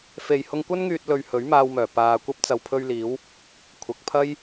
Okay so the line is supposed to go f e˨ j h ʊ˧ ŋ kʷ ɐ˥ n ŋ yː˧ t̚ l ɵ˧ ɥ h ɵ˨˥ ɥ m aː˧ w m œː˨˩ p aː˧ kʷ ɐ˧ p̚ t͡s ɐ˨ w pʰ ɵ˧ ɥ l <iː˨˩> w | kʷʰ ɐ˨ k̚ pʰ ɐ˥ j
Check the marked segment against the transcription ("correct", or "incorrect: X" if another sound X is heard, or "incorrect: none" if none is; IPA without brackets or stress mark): incorrect: iː˨˧